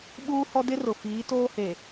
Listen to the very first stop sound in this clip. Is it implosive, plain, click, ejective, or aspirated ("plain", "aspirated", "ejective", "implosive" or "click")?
implosive